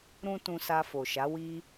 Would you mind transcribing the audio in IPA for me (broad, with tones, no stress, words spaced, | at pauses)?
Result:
ɾũ˦ tũ˧sa˧fo˨ʃa˨˦ wi˦